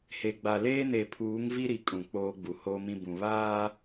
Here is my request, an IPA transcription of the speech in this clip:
h e˨ ɡ͡b a˨ l eː˦ n e˨ pʰ uː˨˦ ŋ v i˦ ɾ i˨ kʼ ũ˨ k͡p oː˦ ɡ͡b u˨ h oː˦ m ĩ˦ b ũ˨ β aː˦

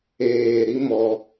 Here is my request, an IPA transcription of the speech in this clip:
eː˨ ɾ i˦ m ɔ˧

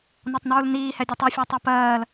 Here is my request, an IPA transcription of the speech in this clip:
n ɒ tˤ n uː l n iː h ɛ dʲ ɛ tˤ i fʲ ɑ tˤ ɜ p ɜː l

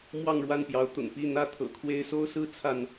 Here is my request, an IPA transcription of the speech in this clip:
m w ɑ˥˨ ŋ ɻ w a˥˨ n p j ɑ˨˦ ʊ̯ t̪ ʊ̰˨˩ ŋ p i˥˨ n̪ ä˦ t̪ʰ ɤ̰˨˩ kʰ w e˦ ɪ̯ s o˦ ʊ̯ s ɹ̩˦ t͡sʰ a˥˨ n

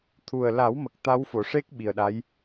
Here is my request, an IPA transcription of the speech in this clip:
t̪ʰ u˨˩ ə̯ l a˨˩˦ w m ə˨˩ k̚ t̪ a˧˥ w f o˨˩˨ ʂ e˦˥ k̚ ɓ i˨˩ ə̯ ɗ a˧˥ j

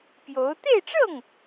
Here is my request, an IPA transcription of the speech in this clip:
p j o˧˥ ʊ̯ t̪ e˥˧ ɪ̯ ʈ͡ʂ ɤ˥˩ ŋ

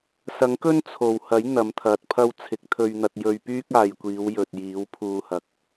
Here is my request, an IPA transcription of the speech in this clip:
s ɐ˨˥ ŋ k ɵ˥ n t͡sʰ o˨˩ w h ɐ˨˥ j n̪ ɐ˨˥ m t̪ʰ ɐ˨ t̚ pʰ ɐ˥ w t͡sʰ ɪ˨˥ k̚ t̪ʰ ɵ˧ ɥ n̪ ɐ˧ t̚ j ɵ˧ ɥ p yː˥ k̚ aː˨ j kʷ iː˨˧ w j ɵ˨ t̚ j iː˨˥ w pʰ uː˧ h ɐ˨ k̚

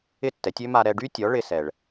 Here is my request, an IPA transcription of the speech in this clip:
ɪ˥˩ tː ɛ˩˥ tʲ ø˥ m a˧ ɾ ɛ˧ ɖ y˥ tʲ ɔ˩˥ ɭ ɪ˧ s ɛ˩ ɭ

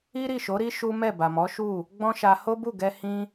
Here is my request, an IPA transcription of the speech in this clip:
i˦ ɾ i˦˨ ʃ o˨˦ ɾ i˦ ʃ u˦ m ɛ˦˨ b a˨ m ɔ˨˦ ʃ u˦˨ | ɡ͡b ɔ̃˦ ʃ a˧ h o˦ b u˦˨ ɡ ɛ˧ h ĩ˦

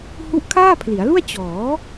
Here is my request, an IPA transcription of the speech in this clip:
h u˦˥ ʔ kʰ aː˥˩ pʰ l i˩˦ a̯ l u˥˩ a̯ t͡ɕ ɔː˩˦

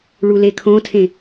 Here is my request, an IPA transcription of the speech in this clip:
ɭ u l e kʰ õ tʰ ẽ

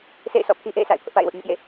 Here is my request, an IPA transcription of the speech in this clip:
sʰ ḛ˦˨ ɪ̯ s ɔ̰˦˨ pʰ i˦ ʔ ḛ˦˨ ɪ̯ sʰ a̰˦˨ ɪ̯ pʰ ʊ˦ ʔ p a̰˦˨ ɪ̯ w ʊ˦ ʔ ɲ ʊ˦ ʔ j ḛ˦˨

